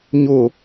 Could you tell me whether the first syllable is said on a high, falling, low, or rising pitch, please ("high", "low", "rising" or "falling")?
falling